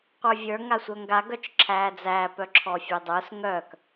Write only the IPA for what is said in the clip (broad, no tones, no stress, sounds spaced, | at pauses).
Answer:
qʷ ə˞ vʲ ə˞ ŋ a sʷ œ ŋ ɡ a ɡ œ t͡ʃ ǁʰ æː d͡z æː p œ ǁʰ ɔ fʲ e dˤ ə˞ s ŋ œ k